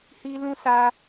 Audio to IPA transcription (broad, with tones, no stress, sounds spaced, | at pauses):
h i˦ l ũ˦ s a˦